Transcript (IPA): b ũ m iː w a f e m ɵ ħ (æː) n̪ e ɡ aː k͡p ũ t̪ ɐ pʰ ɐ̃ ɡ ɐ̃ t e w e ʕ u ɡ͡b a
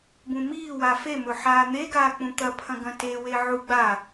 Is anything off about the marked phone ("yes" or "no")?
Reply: yes